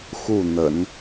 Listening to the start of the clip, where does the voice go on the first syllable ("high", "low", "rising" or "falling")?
falling